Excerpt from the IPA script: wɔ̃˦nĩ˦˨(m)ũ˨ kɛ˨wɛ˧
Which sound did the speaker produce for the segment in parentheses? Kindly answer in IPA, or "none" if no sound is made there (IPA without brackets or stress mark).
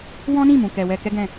m